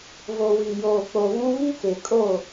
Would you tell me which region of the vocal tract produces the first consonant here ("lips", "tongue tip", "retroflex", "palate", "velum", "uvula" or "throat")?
lips